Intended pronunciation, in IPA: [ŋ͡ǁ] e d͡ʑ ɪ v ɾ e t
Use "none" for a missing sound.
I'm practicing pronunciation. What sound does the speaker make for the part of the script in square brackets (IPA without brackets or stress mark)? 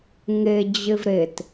ŋ